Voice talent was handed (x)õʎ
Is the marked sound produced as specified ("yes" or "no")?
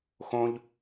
yes